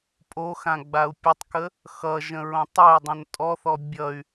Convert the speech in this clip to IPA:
pʼ o x ã ɡ͡b a u̯ pʲ ə tˤ k ə | x ʌ ʒ ə̃ ɹ õ tˤ ʌ y̯ dˤ õ n tʼ ɔ θ ɔ bʲ ʌ y̯

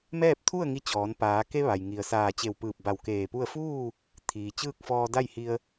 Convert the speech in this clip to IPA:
m ɛː˥˨ p̚ t̪ʰ u˥˨ ə̯ ŋ i˧ t͡ɕ ɔː˩˧ n p aː˩˧ k e˧ ʋ a˩ j ŋ i˩ ə̯ s aː˧˩ t͡ɕ e˧˩ w p ɯː˧˩ p̚ b a˧˩ w k eː˧˩ p u˥˨ ə̯ f uː˥˨ | t̪ʰ iː˩ t͡ɕ ɯː˥˨ k̚ f ɔː˧ d a˥˨ j h i˧ ə̯

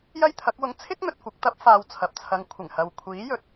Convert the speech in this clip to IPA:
j ɐ˥ j t̪ʰ ɐ˨˥ k̚ w ʊ˧ ŋ t͡sʰ ɪ˥ k̚ n̪ ɵ˨ t̚ kʷ ɐ˧ k̚ t̪ ɐ˥ p̚ f aː˨˧ w t͡sʰ ɐ˨ p̚ t͡sʰ ɐ˧ ŋ kʷʰ ɪ˨˩ ŋ h ɐ˨ w kʷʰ iː˨˥ j ɵ˨˥ t̚

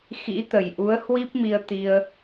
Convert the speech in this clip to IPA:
x ḭ˧˥ t̪ ə˨˩ j ʔ u˨˦ ə̯ h w i˦˥ p̚ m i˧ ə̯ t̪ i˧ ə̯

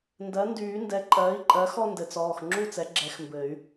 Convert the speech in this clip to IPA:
n d ɜ˩˥ n d yː˨˩˦ n d ɛ˩˥ ǃʼ ɜː˩˥ i̯ ǃʼ ɜ˩˥ x ɔ˥˧ n d ɘ˩˥ t͡s ɔː˩˧˩ x ŋ͡ǁ u˥˧ t͡s ɛ˩˥ ɡ͡ǁ ɛ˨˩˦ x m b ɘ˨˩˦ y̯

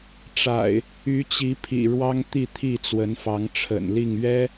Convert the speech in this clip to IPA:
ʈ͡ʂ a̰˨˩ ɪ̯ | y˨˦ t͡ɕ i˨˦ pʰ ḭ˨˩ ɻ w ɑ˦ ŋ t̪ i˥˨ t̪ʰ i˥˨ t͡s w ə˨˦ n f ɑ˨˦ ŋ ʈ͡ʂʰ ə̰˨˩ n l i˥˨ ŋ ɥ ɛ˦

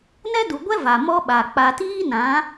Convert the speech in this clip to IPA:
n ɛ˦ d u˨ ɡʷ ɛ˦ v a˨ m ɔ˦ ɓ a˨ k͡p a˨ t iː˦ n ã˨˦

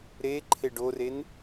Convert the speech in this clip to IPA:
ɾ e ǃʰ e ɖ o r e n

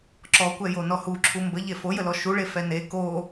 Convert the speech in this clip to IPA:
ǁ ɔ kʷ ɛ j o n ɔ h u ǁʰ u m b ə ʎ e f o j ə l ɔ ʃ u ɭ e f ɛ n e k o

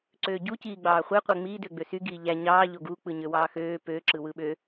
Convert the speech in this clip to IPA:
ǀ øː ɟ u c iː ɡ͡b ɑː χʷ e qʷ e ŋ͡m iː d ø ɡ͡b ø s y ɡ iː ʎ æ ɲ ɑː ʎ o ɡ u k͡p ɯ ɲ ø w ɑː x øː p ø ǁ ɯ w ɯ ɓ ø

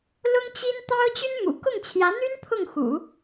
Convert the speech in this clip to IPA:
l ʊ˥ ŋ t͡ɕ i˥ n t̪ ɑ˥ ʊ̯ t͡ɕ y˥ n m ṵ˨˩ k ʊ˥˩ ŋ t͡ɕʰ j ä˧˥ n̪ y˥ n pʰ ʊ˥˩ ŋ x ṵ˨˩˦

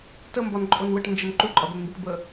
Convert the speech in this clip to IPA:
t ə m b ɒ n ǃʼ o n w ə ʈ n d͡ʒ ə n ǃ u ǃʼ ɒ d̪ ə n m b i ʈ b ə

